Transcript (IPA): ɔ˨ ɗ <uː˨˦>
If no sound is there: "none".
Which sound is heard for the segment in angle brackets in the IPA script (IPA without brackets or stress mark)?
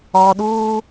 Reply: uː˦